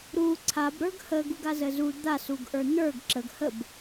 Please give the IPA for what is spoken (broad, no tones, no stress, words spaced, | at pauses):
ɾu ǀʰab ɾə˞ɡhə ɡuɡazəzu d̪a suɡʔə˞n̪ə˞ɡ ǁəɡ həb